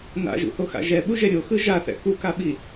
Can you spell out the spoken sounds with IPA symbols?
n a̰ ʒ ṵ h o x a̰ ʒ ɛ ɓ u ʒ ɛ ɾʲ o x ɯ ʒ a θ ɛ̰ k u k a ɓ i

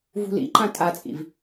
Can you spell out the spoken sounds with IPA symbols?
v ṳ l ḭ ǃ ã tʼ a t͡sʼ ḭ v

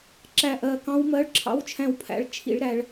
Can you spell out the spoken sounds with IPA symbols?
ǁ æ˦˨ ʔ ɜ˦˨ k ɑ̃˦˥ w m ɜ˧˥˧ ɭ ǁʰ ɑ̰˧˥˧ w t͡ʃʰ æ̃˦˨ w pʰ æ̰˧˥˧ ɭ t͡ʃʰ ḭ˦˥ ɭ ɾ æ˦˥ ɭ

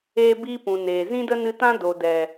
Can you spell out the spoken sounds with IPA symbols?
eː˦ b iː˦ p ũ˨ n eː˨ z ĩ˦ d ə˦ n ɨ˧ t ã˦ d o˨ d ɛ˨

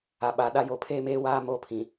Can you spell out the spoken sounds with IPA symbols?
a˨ ɓ a˨˦ ɗ a˦ j o˨ pʰ eː˦ m eː˦ w aː˦ m oː˦ pʰ ĩ˨

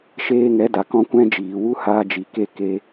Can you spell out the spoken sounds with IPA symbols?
ʃ eː˧ ŋ ɛ˨˦ d a˨ k ɔ̃˦ kʷ ɛ̃˦ d͡ʒ iː˨ w u˦ h aː˧ d͡ʒ i˨ k e˦˨ k e˦

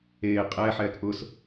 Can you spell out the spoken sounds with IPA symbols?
eː qʼ ɛː ħ ɛː k ʔ ʊ s

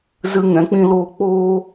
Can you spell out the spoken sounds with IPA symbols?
z ɨ˧ ŋ ɛ̃˨˦ k͡p ĩ˦ l oː˦ k͡p oː˦

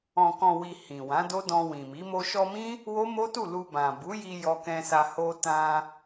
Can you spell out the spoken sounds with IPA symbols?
ɔ̃˨ k ɔ̃˨ w i˨ h ĩ˨ w ã˨˦ d o˦ d ɔ̃˧ w ĩ˨ m i˨˦ m o˧ ʃ ɔ˧ m ĩ˦ | w o˦ m o˦ t u˦˨ l u˧ b ã˨ b u˨˦ j i˧ j ɔ˧ k ɛ̃˧ s a˧ h o˧ t ã˧

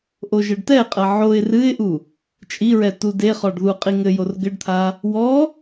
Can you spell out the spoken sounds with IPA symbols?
ʔ o ʒ ɘ ɖ t ɛ qʼ ɐ ʕ o ɪ̯ r ɨ ɪ̯ ʔ u | t͡ʃʼ i ɹ ɛ t u d e χ ɔ ɖ ð u qʼ i ŋ ɘ j o r ɡ ɘ ɖ t̪ʰ a | w ɔ

